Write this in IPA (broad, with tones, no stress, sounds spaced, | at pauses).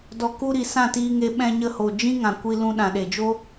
d ɔ˧ k u˦ ɾ i˨ s ã˦˨ t iː˧ ŋ e˧ ɓ ɛ̃˧ ɲ ə˧ h o˨ d͡ʒ ĩ˦ ŋ ã˨ kʷ i˧ l ũ˧ ɗ ã˨ ɗ e˨ d͡ʒ o˦